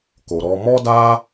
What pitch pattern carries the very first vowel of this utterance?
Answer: low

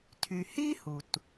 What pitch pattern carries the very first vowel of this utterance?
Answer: low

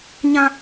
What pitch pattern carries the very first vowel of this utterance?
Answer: high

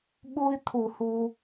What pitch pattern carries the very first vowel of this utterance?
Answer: high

